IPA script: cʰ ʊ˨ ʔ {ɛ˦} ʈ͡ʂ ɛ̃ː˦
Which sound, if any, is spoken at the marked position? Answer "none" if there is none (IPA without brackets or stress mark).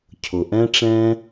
ɛ̃˦